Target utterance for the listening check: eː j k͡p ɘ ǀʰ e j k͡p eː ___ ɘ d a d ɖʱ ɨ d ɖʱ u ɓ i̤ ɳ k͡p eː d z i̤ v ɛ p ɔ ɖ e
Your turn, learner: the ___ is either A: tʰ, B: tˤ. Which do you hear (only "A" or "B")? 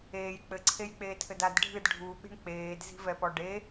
A